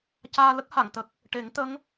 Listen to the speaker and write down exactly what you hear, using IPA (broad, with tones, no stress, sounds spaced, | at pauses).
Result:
c aː˧ l ə˦˥ k̚ h a˨˩˨ ŋ t̪ ə˨˩ k̚ | ʈ e˨˩˦ ŋ t̪ ə˧˥ ŋ